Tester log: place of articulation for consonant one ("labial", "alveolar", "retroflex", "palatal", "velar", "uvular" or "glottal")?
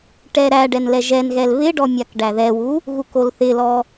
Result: retroflex